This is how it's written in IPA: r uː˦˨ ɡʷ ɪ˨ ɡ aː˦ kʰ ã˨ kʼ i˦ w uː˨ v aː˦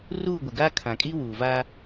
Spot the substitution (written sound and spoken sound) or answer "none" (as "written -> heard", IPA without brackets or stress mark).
none